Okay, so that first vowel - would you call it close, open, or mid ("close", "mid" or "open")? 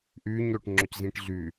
close